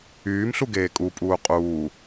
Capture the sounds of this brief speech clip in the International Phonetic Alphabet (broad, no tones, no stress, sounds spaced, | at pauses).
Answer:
yː m ɬ u ɡ eː kʼ u pʼ uː qʼ uː